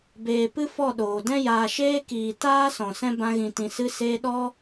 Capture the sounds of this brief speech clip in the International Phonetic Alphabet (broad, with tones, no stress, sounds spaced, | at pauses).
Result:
b eː˨ p ɨ˦ f ɔ˦˨ ɗ oː˨ d ɛ̃˦ j aː˨ ʃ eː˦ k iː˨ t aː˦ s ɔ̃˨ s ɛ̃˦ b ã˧ ɣ ĩ˨ t ĩ˨ s ɨ˧ s eː˧ ɗ ɔ˧